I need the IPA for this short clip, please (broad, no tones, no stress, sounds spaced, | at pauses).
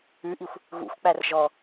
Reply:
ʉ ʔ i xʷ | ɣ ṵ xʷ k͡p æ r ʒ ɔ